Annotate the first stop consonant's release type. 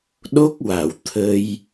implosive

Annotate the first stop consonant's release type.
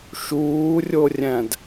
plain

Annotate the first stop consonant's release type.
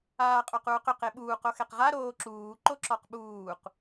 ejective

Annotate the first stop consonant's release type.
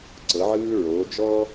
click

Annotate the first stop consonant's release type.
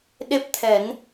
implosive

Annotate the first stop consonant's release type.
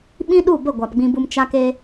implosive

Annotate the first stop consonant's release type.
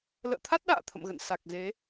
aspirated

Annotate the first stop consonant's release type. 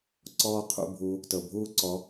click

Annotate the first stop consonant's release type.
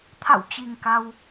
aspirated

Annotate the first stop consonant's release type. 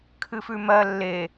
aspirated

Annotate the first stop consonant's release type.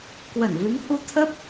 plain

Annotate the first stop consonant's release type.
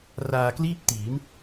plain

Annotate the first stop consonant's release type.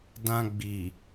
plain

